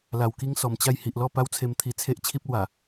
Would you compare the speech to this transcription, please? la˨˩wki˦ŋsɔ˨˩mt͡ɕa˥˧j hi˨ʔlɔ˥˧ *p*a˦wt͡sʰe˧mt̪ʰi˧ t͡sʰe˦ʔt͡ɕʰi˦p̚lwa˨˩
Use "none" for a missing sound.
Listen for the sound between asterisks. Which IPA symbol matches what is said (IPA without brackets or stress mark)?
p